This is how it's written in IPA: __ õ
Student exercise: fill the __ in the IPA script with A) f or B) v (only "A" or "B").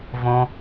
B